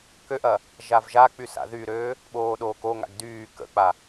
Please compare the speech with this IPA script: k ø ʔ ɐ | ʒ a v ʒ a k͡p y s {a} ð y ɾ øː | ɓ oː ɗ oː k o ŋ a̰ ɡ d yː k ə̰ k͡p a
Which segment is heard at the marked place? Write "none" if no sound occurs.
a̰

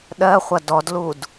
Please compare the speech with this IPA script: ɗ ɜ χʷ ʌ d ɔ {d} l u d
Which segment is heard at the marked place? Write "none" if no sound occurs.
d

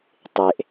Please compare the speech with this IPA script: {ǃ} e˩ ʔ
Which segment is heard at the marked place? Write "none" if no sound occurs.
tˤ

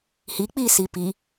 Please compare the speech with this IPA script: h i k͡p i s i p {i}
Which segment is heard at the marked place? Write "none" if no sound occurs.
i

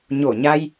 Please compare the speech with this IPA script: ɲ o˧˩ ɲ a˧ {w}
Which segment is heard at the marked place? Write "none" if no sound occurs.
j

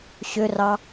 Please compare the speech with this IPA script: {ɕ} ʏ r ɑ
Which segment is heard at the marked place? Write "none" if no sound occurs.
ɕ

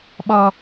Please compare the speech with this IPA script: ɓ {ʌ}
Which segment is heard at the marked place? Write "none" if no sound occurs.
ʌ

